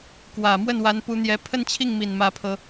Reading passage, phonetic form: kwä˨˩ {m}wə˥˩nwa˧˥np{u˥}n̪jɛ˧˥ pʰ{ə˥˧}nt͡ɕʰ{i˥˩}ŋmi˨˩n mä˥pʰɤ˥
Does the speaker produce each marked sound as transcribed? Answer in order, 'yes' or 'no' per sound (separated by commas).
yes, no, yes, yes